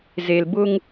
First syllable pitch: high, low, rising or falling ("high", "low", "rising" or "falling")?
low